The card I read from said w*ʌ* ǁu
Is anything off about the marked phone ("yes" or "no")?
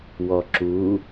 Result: yes